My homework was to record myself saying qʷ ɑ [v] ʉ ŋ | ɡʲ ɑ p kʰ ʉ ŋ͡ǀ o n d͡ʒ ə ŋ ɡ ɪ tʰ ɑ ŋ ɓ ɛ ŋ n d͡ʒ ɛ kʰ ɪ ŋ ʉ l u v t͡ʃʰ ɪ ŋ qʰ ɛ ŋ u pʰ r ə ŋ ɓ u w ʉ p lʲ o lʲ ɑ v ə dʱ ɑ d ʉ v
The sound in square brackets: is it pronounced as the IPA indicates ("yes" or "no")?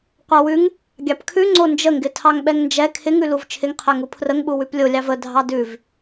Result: no